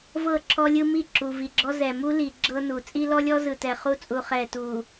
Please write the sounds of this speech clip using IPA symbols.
v ɤ˦˨ ǁʰ ɔ˦ lʲ ɯ˦ m i˦˨ ǁ u˨ v i˨ ɡ͡ǁ ɔ˦ z ɛ˨ m u˦ l i˨ ɡ͡ǁ ɤ˦ n u˨ t͡sʼ i˦ l ɔ˦ lʲ ɔ˦ z ɯ˨ t ɛ˨ χ u˦ t͡sʼ u˨ χ ɛ˨ t u˨

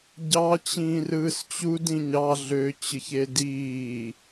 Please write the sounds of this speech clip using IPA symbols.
ɟ ɑ t͡ɕ ĩː r ɯː s t͡ɕ u d ĩ ɲ ɑ ɮ ø t͡ɕ ɯ ç e d iː

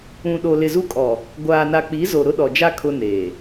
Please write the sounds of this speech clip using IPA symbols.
ũ˨ ɗ o˨ l ɪ˨ z u˦ kʼ ɔ˨ | ɡʷ aː˨ n a˨ k͡p i˨˦ z o˨ ɾ ʊ˦ ɗ ɔ˨ d͡ʒ a˦ kʰ ʊ˦ n eː˨

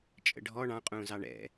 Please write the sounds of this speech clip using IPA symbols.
t͡ʃʼ ə̰ ɖʱ ɔ ɳ ɑ̃ qʼ ũː z ɑ ɳ ɛ̰

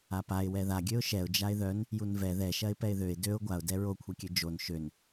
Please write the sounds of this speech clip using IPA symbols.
a p a ɪ̯ w ɛ ð a ɡʲ ø ʊ̯ ʃ ɛ ʊ̯ d͡ʒ a ɪ̯ ð œ n | j u n v ɛ ð ɛ ʃ ɐ ɪ̯ p ɛ ɪ̯ ð ø ɪ̯ d ø ʊ̯ ɡʷ a ʊ̯ d ɛ ɹ o kʷʰ ɛ kʲ ø d͡ʒ o n ʃ ø n

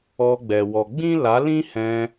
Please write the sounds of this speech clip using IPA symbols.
ɔ˧ ɡ͡b ɛ˨ w ɔ˨ ɡ͡b ĩ˦ l a˨˦ l ĩ˦ h ɛ̃˧

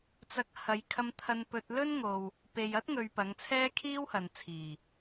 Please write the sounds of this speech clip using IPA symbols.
t͡s ɐ˧ k̚ h ɐ˨˧ j kʰ ɐ˧ m t̪ʰ ɐ˧ n p ɵ˧ t̚ l ɵ˥ n ŋ o˨ w | p e˨ j ɐ˥ t̚ ŋ ɵ˧ ɥ p ɐ˨˧ ŋ t͡sʰ ɛː˥ kʰ iː˥ w h ɐ˨ n t͡sʰ iː˨˩

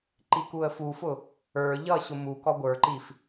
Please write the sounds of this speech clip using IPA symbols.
ǃ i k u ə̯ f u f ʊ | ə˞ ʎ ʌ ɕ ʊ m u k ɔ ɡʷ ə˞ ǃ i f

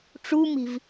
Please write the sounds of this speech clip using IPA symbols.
ʈ͡ʂ u m i̤ v

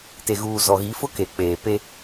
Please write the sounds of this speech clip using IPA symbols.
t e˨ ɣ uː˨ z ɔ˨ ɣ i˨˦ f ʊ˦ k e˨ k͡p eː˨ p e˦

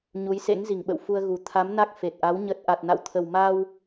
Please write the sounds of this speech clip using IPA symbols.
ɲ u˨˦ j s ḛ˧˥ ŋ z i˧˩ ŋ ɓ ə̰˧˨ w f u˧ ə̯ ɣ u˨˩ t̪ʰ a˨˦ m n a˦˥ k̚ f e˨˩ t̚ ʔ a˨˦ w ɲ ə˦˥ t̚ ʔ a˨˩ t̚ n a̰˧˨ w t̪ʰ ə˨˩ w m a˧ w

